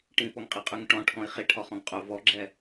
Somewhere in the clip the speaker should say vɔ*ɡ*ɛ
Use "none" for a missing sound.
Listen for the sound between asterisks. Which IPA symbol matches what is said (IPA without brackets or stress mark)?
ɡ͡ǁ